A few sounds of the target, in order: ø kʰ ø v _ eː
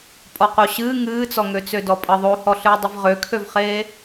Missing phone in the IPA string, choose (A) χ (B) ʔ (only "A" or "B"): A